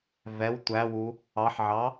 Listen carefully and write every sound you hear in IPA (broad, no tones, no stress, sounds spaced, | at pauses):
v ɛ w tʷ æ w u | ɑ ħ ʕ ɑ